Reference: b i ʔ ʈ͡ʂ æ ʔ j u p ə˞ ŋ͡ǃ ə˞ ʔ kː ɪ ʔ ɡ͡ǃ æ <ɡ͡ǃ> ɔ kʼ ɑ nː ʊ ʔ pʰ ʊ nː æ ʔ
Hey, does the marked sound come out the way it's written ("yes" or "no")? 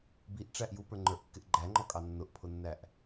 no